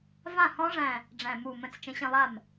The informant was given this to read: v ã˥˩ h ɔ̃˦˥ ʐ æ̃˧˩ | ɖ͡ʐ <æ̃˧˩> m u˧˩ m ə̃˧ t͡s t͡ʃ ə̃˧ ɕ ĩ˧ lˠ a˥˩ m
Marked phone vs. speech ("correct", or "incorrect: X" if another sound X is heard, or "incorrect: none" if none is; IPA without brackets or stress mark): correct